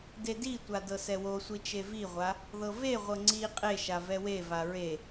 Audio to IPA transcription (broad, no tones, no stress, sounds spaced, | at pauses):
d e d i tʷ a d ɤ s ɛ w o sʷ i t͡ʃ e v i ʁʷ a | ð ɤ v e ʁʷ ɤ ŋ͡ǀ i qʼ e ʃ a v ɛ w e v a ɹ e